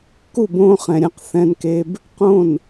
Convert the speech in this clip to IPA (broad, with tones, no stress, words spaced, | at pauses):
ku˦˨bõː˧χɛ̃˨ ɾʲɛ̃˦qθɛ̃˦nke˦b | qõ˦˨n